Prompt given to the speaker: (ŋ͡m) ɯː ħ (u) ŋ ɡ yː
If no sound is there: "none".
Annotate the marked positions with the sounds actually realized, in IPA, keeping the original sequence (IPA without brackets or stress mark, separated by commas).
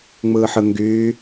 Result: ŋ͡m, ɯ